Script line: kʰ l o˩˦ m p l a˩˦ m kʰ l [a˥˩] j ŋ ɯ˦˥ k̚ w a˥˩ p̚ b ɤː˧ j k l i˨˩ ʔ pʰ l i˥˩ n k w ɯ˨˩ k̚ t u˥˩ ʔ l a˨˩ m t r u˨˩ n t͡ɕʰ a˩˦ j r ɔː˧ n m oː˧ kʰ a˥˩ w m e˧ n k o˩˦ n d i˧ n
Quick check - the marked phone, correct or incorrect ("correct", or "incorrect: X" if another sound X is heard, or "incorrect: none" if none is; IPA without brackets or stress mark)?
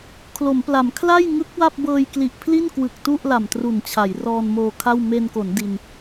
correct